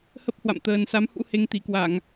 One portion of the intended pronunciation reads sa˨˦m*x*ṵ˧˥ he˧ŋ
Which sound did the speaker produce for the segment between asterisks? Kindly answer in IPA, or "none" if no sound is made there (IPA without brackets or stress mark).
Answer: h